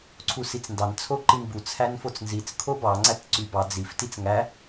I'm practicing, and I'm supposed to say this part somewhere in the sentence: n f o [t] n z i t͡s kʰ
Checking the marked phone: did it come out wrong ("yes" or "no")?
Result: yes